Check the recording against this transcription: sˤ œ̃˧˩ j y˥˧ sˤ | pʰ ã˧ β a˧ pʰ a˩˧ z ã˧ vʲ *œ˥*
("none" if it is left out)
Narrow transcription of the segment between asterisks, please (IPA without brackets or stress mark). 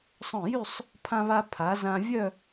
œ˥˧